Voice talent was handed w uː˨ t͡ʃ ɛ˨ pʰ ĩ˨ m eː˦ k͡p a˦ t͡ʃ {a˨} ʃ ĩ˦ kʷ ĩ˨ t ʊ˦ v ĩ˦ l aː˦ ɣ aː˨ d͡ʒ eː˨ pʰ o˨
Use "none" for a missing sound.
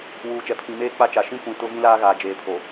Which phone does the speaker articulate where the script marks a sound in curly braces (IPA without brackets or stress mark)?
a˨